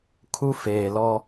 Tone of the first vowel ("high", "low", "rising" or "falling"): high